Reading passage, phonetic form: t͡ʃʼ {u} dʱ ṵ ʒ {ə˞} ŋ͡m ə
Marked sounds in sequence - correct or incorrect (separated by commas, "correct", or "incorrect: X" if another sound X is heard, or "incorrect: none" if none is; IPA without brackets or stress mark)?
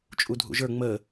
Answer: correct, correct